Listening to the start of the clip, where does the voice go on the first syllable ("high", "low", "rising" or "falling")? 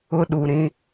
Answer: high